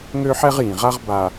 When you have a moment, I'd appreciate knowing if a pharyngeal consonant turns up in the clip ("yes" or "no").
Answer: yes